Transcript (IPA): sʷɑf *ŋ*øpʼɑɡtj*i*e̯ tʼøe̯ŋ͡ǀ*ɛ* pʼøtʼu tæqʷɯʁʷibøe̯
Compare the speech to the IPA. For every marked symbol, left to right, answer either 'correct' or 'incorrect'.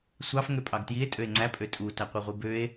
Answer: correct, correct, incorrect

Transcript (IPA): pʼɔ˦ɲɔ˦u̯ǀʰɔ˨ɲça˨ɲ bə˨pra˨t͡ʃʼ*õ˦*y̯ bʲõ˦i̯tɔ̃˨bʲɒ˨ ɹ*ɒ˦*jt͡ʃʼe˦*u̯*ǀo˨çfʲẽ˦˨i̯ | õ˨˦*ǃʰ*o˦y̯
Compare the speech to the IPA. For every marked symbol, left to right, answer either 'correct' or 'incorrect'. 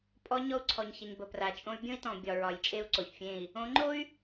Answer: correct, incorrect, correct, incorrect

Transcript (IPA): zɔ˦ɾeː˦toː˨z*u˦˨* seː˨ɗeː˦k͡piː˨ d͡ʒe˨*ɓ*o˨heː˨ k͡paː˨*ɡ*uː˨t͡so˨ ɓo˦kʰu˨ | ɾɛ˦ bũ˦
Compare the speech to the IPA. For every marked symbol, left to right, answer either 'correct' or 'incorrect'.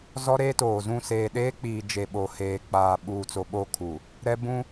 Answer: incorrect, correct, incorrect

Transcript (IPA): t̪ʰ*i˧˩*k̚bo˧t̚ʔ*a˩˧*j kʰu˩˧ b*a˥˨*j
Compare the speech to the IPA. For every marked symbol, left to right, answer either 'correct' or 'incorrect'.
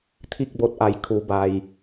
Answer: incorrect, correct, incorrect

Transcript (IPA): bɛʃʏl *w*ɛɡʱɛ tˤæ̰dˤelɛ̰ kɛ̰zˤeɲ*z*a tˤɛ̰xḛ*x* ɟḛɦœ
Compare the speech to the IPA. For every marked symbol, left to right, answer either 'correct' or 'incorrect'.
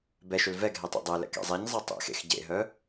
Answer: incorrect, incorrect, correct

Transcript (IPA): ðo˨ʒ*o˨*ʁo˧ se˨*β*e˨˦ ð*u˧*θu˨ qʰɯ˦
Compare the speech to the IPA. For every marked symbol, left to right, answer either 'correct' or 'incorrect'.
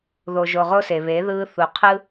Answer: correct, correct, incorrect

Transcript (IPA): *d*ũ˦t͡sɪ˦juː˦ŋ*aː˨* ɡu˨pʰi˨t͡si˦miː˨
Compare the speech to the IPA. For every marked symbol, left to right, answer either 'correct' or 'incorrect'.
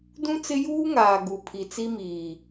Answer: correct, correct

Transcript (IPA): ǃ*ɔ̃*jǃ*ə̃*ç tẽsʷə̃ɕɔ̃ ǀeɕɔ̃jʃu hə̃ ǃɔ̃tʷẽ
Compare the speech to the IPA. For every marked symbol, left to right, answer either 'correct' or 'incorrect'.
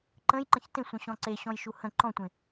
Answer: incorrect, correct

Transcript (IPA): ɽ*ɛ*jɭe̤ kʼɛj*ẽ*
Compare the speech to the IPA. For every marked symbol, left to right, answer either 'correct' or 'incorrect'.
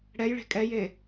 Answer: correct, incorrect

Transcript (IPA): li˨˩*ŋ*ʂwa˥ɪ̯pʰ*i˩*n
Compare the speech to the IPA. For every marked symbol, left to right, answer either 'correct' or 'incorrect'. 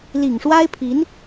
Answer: correct, incorrect

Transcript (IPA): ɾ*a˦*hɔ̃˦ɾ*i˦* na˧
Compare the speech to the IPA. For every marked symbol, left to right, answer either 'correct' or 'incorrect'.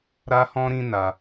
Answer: correct, incorrect

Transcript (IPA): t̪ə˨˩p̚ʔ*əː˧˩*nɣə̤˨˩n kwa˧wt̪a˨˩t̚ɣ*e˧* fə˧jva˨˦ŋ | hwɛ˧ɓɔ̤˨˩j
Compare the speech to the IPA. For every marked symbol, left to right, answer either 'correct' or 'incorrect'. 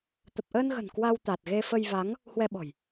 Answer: incorrect, correct

